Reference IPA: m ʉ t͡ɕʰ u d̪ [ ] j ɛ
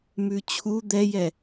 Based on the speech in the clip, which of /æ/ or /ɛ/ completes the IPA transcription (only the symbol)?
ɛ